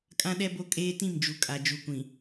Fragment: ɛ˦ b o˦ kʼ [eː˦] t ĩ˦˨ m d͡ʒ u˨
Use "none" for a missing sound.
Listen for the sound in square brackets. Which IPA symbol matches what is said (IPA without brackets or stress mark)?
eː˦